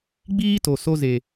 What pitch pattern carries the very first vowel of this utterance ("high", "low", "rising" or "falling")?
high